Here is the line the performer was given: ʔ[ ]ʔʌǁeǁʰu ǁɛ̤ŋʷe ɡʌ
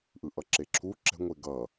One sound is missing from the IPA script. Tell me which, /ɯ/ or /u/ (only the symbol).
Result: ɯ